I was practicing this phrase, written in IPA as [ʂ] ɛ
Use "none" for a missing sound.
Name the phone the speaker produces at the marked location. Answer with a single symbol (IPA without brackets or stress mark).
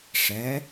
ʂ